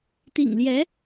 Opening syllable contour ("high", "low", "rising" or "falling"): low